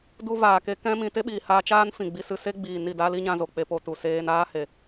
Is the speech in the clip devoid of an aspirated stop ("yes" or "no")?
yes